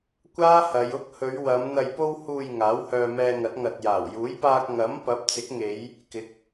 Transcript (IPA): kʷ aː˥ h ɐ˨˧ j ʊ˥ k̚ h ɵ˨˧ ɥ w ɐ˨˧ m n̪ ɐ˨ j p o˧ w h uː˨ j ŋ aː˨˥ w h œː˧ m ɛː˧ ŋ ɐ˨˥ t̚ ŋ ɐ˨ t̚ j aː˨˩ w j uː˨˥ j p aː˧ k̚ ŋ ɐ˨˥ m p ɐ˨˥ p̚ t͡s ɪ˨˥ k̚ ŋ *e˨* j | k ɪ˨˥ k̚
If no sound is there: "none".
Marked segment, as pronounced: e˨˧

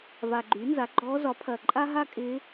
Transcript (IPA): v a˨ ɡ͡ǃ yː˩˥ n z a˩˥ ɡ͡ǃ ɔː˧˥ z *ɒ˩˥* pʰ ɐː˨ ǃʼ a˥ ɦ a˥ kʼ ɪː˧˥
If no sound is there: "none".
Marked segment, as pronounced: ɒ˩˥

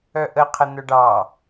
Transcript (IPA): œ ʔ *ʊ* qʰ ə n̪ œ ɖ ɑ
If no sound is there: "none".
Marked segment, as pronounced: ə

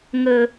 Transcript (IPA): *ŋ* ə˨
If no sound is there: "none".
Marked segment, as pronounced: ŋ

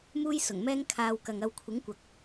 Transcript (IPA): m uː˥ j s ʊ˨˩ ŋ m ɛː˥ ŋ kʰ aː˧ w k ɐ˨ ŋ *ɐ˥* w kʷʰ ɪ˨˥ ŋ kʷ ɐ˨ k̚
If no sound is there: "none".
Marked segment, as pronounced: ɐ˧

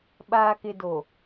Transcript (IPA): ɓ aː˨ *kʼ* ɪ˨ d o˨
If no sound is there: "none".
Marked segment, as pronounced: k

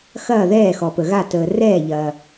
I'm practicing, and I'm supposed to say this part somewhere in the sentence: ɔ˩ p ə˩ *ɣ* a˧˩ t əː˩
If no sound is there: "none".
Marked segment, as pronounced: ɣ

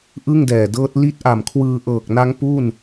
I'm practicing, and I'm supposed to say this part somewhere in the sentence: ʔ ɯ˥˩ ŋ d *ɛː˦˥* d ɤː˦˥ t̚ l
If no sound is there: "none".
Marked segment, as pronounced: ɛː˨˩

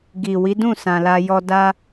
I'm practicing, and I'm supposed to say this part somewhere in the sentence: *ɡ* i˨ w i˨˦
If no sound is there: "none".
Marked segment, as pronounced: ɡ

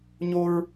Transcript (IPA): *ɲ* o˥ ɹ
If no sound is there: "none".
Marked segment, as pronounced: ɲ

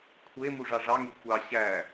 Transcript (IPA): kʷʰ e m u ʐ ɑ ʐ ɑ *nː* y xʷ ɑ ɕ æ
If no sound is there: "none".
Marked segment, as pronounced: ŋ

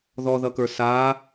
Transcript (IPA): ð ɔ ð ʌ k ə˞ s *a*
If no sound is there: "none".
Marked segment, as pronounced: a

